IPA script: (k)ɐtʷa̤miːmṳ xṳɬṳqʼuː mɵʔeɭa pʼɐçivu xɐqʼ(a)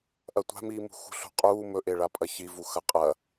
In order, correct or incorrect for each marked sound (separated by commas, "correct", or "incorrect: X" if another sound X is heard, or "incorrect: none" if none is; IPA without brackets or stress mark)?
incorrect: ʔ, incorrect: ɐ